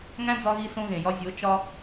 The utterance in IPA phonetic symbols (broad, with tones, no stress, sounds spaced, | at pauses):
ŋ æ̃˦ d͡z ɒ˧ ɣ i˧ s õ˧ ɣ ẽ˨ j ɒ˧ zʲ o˨˦ t͡ʃ ɒ˧